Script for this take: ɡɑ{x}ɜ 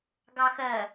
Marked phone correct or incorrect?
correct